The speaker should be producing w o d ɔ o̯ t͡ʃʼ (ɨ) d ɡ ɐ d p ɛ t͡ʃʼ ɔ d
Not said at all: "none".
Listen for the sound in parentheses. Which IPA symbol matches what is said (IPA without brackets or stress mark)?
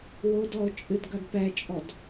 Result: ɨ